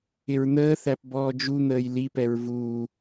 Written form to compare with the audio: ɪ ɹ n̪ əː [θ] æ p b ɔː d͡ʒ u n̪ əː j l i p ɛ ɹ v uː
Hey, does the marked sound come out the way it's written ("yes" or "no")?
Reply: yes